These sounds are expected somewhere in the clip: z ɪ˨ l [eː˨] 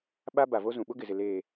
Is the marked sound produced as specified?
yes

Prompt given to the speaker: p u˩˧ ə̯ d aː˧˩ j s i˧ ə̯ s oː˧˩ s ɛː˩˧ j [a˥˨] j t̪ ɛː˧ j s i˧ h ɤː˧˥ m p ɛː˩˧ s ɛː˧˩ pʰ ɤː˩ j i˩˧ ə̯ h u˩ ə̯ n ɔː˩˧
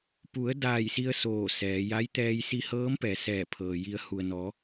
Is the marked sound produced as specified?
no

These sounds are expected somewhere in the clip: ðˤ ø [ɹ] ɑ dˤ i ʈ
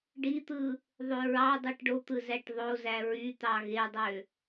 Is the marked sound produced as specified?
yes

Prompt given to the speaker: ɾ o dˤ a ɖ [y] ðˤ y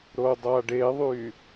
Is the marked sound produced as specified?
no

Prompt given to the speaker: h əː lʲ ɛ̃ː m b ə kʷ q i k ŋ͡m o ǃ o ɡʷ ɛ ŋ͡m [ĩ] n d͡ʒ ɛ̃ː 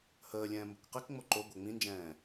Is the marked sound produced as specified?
yes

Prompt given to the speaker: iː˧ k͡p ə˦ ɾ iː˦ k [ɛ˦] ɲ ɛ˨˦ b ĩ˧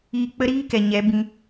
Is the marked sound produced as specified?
no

